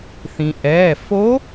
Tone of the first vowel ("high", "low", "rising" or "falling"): low